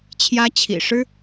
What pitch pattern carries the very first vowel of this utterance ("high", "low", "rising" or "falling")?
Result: high